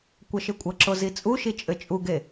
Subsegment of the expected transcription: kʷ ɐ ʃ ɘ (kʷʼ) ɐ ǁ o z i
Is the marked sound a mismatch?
no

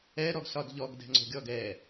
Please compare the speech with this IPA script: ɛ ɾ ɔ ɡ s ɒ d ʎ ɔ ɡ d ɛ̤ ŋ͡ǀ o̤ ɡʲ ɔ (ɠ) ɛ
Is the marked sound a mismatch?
yes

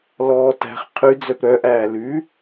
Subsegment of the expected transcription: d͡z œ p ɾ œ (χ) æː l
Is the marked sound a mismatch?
yes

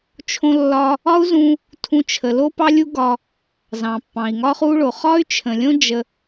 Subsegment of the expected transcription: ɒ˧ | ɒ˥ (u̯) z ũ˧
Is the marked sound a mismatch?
no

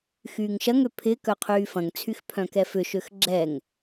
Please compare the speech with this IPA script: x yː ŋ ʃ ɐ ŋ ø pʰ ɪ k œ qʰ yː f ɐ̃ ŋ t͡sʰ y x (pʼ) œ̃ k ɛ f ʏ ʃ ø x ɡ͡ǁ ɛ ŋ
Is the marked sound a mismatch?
yes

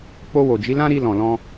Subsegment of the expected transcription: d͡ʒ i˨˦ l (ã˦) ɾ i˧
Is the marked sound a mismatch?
no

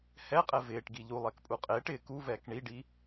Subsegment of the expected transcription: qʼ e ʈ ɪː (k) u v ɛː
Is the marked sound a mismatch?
no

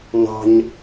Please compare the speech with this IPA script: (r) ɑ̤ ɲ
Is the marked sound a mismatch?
yes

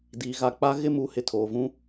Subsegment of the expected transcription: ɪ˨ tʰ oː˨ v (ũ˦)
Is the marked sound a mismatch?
no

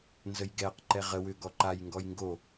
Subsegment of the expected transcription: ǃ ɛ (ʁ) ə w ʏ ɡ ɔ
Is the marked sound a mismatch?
no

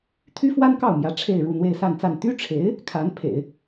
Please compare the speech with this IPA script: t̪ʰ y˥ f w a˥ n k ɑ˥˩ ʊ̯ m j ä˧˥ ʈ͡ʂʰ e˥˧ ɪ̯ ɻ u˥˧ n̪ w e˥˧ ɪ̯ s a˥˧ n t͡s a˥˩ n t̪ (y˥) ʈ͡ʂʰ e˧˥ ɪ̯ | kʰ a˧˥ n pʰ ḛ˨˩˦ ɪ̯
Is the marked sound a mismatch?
no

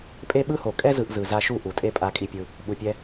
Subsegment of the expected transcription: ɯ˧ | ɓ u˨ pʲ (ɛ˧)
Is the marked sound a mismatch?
no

